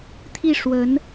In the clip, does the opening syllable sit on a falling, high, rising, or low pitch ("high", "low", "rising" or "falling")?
falling